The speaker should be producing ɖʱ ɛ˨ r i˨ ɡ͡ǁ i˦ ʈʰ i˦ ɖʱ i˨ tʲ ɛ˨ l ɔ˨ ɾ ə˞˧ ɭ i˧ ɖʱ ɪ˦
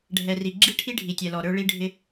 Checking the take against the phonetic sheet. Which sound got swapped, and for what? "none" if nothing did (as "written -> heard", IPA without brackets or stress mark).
none